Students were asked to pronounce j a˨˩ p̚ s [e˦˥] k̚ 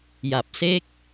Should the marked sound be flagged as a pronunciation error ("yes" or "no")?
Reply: yes